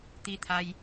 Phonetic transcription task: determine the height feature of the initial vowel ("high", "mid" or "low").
high